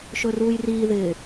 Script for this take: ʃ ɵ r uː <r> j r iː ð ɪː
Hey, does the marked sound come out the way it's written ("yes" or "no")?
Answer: no